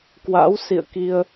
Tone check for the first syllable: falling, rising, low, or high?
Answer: rising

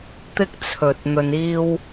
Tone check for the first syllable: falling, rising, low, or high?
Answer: high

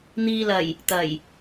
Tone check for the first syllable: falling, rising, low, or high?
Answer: low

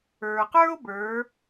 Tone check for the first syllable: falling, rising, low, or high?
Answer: low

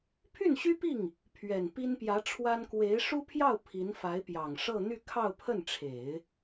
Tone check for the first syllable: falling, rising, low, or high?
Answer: falling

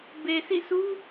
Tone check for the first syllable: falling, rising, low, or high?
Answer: low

